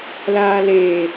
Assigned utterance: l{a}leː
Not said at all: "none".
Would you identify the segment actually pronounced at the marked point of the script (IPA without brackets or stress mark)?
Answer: aː